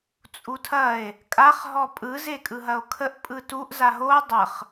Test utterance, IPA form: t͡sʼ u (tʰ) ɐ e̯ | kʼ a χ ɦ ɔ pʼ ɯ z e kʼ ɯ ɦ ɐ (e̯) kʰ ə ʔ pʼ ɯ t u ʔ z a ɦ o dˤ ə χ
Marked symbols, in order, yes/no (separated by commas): yes, no